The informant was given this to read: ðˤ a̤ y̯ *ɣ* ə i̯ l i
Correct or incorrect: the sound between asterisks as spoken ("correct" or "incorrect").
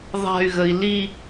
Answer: correct